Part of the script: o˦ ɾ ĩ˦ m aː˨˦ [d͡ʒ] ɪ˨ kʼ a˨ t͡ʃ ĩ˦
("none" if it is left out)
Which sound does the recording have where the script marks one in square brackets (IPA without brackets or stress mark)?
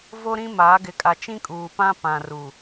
ɡ